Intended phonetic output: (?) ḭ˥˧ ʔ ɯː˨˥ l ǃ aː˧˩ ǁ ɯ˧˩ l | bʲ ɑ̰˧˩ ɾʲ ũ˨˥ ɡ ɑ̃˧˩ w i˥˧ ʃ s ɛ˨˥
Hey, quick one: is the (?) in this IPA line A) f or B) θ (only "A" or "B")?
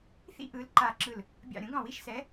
B